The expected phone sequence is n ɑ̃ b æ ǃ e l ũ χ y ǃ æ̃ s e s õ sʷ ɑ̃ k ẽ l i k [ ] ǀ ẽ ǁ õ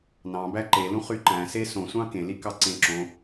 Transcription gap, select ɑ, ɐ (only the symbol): ɑ